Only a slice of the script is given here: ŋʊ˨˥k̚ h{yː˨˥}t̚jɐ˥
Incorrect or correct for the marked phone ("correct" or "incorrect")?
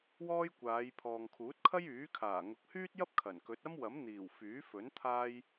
incorrect